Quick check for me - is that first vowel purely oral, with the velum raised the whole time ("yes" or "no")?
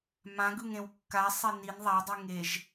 no